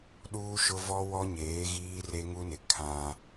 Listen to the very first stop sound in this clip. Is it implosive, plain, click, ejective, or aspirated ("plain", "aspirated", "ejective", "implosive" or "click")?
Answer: implosive